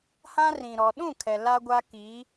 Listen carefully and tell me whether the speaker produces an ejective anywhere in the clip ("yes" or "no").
no